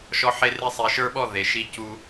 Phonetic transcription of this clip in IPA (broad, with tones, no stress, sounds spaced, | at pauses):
ʃ ɔ˦ ħ e˦ r e˦ sˤ i˨ ʃ ə˞˦ ɓ ɔ˦˨ ð e˨ ʃ i˦ c u˦